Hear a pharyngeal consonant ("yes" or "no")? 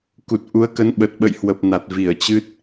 no